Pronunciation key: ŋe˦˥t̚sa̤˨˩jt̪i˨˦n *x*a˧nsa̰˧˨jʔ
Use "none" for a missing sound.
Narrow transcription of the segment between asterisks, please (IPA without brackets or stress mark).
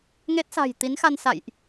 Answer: x